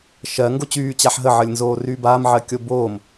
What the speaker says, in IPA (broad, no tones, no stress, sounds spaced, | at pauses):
ʃ ɜ ŋ ɡ o t͡ɕ yː t͡ɕ a ħ ɦ ə ʕ ə lʲ n z oː r yː b aː m ʕ ɜ kʲ o b oː m